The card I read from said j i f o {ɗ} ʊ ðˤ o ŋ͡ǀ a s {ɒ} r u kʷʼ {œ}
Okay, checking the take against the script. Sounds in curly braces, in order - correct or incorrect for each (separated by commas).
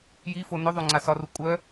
incorrect, correct, correct